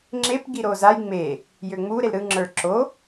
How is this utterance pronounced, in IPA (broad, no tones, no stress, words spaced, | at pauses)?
ŋ͡ǁep ɡiɾozaj ŋ͡me | jøŋ͡mu ɾelɾɯ ŋ͡ǁə˞ǁo